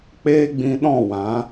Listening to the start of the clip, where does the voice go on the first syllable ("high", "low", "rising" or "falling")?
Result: high